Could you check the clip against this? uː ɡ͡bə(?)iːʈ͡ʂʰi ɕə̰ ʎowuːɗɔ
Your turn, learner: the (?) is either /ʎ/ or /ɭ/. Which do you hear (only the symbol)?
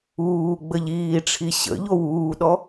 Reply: ʎ